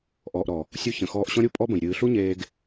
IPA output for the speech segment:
ʔɔː˨ʔɾɔ˨ | sʲu˧ çə̃˨xɔː˧ʔɕɔ̃˦ɾʲu˦ pʼɔ˦bə̃˨j ɾʲɨː˨ɬu˦ ɲeː˧ɡ

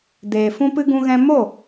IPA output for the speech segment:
deː˨fũ˦pɨ˦ ɡũ˧ɣɛ̃˧ mo˦˨

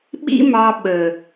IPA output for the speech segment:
ɓḭ˦mɑ˧ ɓə˨

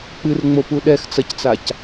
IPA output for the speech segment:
k͡pɨrŋ͡mopu ɗɛxt͡sɐct͡sac

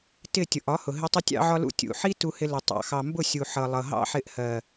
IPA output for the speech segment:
tɪ˦˨ tʲʊ˨ʔɒ˨˦hʊ˨ɦɪ˧ tˤɪ˧tʲɑ̰˧ʕɒ˧lṵ˧ tʲṵ˨ħi˦ tu˦hɪ˦lʊ˧ tˤɑ̰˧xɑ˧ mbʊ˦˨sʲu˨ ħʌ˨ lˠʌ˨ɦɑ̰˦ħɪ˧ʔ hɜ˨

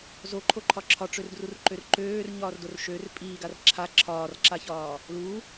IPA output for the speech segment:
zoǃʰoǃʰɒ ǁʰɒʈ͡ʂørdrurǃør ǃøːrɲɒːrdor ʃør pʼiːɡar ǁʰa ǁʰɒːrǁaçɒː | lu

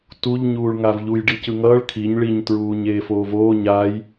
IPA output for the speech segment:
tuʎ ɲuːɭŋavʎuj ɖicɯŋʌːɭ kʰiɲ ɭiɲ tɹuːɲeːfoːvoː ɲaj

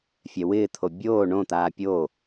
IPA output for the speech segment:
fʲɛwɪːt̪ʰo bʲoː ɳõt̪aː pʲo

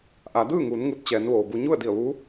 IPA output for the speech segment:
ʔa˩˧dɯː˥˨ŋuː˩˧n ŋu˧t̚t͡ɕɛː˩˧nʋoː˩bu˧ ɲu˥˨ə̯di˧˩ə̯ʋu˧˥

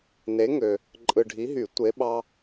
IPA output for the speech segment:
ne˨˦ŋø˨ | ǃʼɯ˨ɖʱi˨˦ɦy˨˩˦ tʷe˨˦ɓɑ˦

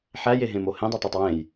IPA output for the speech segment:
ħæjeɦẽmo hẽdˤɛtˤætˤ wẽj

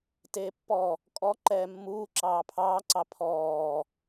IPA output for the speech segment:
teːpːɔ | kʼɔ ǃɛːmːuː ǁɑːpʰɑːǀɑ pʰɔː

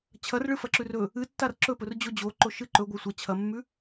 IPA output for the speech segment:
t͡ɕʰɐrɭɨfɐǁʉr ɵ | ɨtːar ǁɵpɵrd͡ʑo d͡ʑoǃoʃɨ ǃɵɡʷɐ sʷɐ t͡ɕʰɐmːʉ

